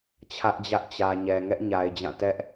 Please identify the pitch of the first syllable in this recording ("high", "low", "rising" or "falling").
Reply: high